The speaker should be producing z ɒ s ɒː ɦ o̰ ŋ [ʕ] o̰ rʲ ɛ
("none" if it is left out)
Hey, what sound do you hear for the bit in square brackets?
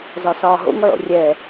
ʕ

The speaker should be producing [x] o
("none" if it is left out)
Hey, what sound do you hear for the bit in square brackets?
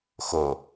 x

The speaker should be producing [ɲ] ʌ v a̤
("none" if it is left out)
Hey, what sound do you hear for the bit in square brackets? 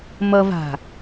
m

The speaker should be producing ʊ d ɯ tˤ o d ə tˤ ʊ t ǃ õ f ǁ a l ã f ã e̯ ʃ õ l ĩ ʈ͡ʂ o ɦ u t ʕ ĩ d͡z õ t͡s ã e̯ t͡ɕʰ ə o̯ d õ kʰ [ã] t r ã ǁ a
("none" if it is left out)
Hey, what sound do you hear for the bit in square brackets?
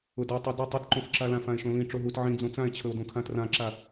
ã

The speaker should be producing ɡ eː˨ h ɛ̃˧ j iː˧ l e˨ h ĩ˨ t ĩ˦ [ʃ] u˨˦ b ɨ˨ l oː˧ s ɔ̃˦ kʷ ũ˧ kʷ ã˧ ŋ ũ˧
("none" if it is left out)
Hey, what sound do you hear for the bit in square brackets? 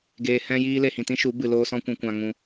ʃ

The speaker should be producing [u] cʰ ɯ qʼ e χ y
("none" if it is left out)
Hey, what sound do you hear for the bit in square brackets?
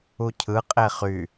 u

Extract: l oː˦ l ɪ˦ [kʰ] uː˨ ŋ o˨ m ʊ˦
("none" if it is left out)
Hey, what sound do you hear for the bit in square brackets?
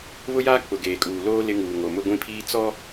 ŋ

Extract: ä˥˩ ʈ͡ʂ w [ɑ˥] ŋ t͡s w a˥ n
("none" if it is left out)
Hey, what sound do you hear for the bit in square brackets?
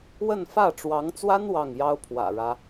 ɑ˧˥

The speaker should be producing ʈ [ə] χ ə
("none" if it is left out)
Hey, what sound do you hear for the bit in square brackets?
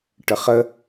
ə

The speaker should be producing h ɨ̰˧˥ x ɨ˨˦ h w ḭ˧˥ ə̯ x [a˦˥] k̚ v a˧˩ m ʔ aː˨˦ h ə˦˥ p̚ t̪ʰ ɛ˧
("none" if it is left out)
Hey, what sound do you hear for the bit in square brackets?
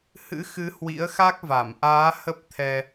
a˦˥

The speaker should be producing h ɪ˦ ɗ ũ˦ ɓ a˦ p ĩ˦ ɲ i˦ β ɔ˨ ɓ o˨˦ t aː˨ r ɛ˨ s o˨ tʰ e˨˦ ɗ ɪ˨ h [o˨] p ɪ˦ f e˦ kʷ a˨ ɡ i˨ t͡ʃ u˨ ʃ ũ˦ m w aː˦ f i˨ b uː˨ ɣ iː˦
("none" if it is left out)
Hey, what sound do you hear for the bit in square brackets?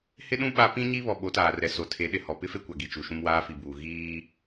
ɔ˨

